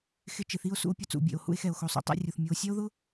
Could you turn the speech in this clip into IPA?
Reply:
xɪ˧ t͡ʃɪ˩θi˧o̯ sṵ˧o̯ pʲʊ˧t͡sṵ˩bʲḛ˩o̯ hṵ˧e̯xɛ˩o̯xo˩sˤo̰˧ tˤɛ̰˧rʲu˩θ mʲu˩o̯sʲɛ˥o̯ðʊ˥

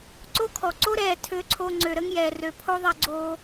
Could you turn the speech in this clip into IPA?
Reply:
ǀo˦kʰɔ˨ ǀo˦ ɾɛː˨ tʰø˧ǀʰo˧ ŋ͡ǀø˨ɾə˦ŋjɛː˨ rø˨pʰo˦ ðˤɛ˧ɡ͡ǀoː˧

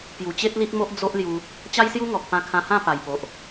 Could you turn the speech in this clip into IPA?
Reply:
pju˨˩t͡ɕe˦t̚li˦t̚mo˦ʔ d͡zo˦ʔlju˧ | t͡ɕa˦jsju˦ ŋɔ˨k̚pã˧kʰã˧hã˥˧ pa˨˩jpo˨ʔ

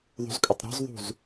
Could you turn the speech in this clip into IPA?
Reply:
ðˤṳzkʼʏtˤɾɔ̤zðˤṳz

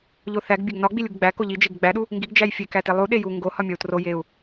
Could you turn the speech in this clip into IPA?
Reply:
ʎoθæɡ bʲæɡnɒ ɡ͡bilʲuɡɡ͡bæ koʎi d͡ʒeɡɡ͡bæɗu | ŋɡiɡ d͡ʒæjfʲekæ telˠu ɗeju ŋɡohɒ mʲɒu̯tro jeu̯

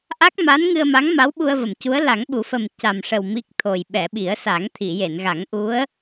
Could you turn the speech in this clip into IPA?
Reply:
ʔa˦˥k̚ma˧˥nŋɨ˧ə̯ma˧˥ŋ ma˧˥wɓu˧ə̯və˨˩˨mcu˧˥ə̯ la˨˩˦ŋɓu˨˩˦fə˨˩m ca˨˩mʂə˨˩w mi˦˥k̚t̪ʰo˨˩j ɓɛ˨˩˨ɓi˨˩˦ə̯sa˨˩˦ŋ t̪ʰi˨˩˨je˨˩˨nɣa˨˩˦ŋ ʔu˧˥ə̯

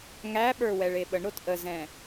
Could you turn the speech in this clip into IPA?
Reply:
ŋæɓə˞ wɛɭeɓəɳɾot ʔəzɛ̃

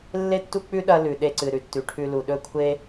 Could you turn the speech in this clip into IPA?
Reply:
lːe˦tːu˦k͡pʉ˦ ɗɐ˦ lʉ˨ɗe˧ǀɨ˨ ɾʉ˧tːʉ˨ʈʰʉ˧ lu˨ɗɵ˦kʷʰe˦

